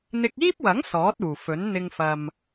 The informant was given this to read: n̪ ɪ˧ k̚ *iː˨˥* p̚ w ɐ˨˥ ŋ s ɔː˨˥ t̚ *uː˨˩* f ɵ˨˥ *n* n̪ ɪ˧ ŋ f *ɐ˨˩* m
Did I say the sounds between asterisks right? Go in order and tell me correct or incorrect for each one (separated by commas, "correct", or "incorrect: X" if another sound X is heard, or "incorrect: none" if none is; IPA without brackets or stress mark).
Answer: incorrect: iː˥, correct, correct, incorrect: ɐ˨